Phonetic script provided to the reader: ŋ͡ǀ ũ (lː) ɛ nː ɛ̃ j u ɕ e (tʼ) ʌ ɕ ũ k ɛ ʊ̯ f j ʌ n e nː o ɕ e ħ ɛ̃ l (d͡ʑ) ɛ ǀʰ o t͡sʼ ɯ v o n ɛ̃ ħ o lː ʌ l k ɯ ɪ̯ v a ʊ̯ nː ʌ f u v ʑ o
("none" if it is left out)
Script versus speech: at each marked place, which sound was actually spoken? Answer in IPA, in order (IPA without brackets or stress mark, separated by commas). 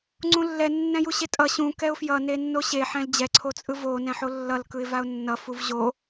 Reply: lː, tʼ, d͡ʑ